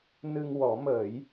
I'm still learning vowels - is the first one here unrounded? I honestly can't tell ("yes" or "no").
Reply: yes